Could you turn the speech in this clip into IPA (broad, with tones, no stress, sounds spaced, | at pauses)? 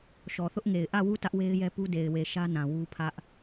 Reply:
ʃ ɔ˨ θ ʊ˦ ʔ ŋ e˨ ɪ̯ ʔ ä˦˨ w u˦˨ t ä˦ ʔ w e˦ ɪ̯ j ɛ˦ p u˦ d e˨ ɪ̯ w e˨ ʃ ä˦ n ã˨ w u˦ pʰ ä˦ ʔ